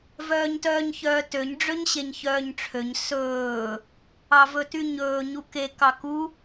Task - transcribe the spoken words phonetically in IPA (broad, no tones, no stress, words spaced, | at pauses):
vœːɲtœːɲçœːtøɲ ɖ͡ʐøɲɕeɲçœːɲʈ͡ʂʰøɲ sɵː | ɑvɵtyɲɵː ɲuke kɑku